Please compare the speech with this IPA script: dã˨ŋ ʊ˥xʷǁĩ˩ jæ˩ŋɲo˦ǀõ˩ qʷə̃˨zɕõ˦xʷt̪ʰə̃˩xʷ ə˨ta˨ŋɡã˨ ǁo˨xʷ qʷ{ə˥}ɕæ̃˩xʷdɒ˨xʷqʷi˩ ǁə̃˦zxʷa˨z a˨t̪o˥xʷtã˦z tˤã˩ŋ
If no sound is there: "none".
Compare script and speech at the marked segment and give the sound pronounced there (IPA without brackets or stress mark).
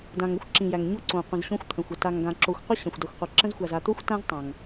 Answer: a˥